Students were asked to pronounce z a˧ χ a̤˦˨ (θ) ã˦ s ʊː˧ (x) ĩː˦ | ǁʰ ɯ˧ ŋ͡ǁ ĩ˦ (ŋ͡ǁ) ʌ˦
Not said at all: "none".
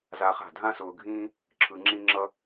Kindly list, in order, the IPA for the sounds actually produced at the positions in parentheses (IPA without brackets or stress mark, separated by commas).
dʱ, ɡʱ, ŋ͡ǁ